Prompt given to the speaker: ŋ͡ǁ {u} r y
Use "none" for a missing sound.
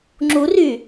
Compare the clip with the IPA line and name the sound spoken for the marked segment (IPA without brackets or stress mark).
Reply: u